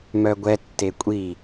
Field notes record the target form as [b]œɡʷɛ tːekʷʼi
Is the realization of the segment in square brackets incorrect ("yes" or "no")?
yes